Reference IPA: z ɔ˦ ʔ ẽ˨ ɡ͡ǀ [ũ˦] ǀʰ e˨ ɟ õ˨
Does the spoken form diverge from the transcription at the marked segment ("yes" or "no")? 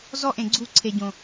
yes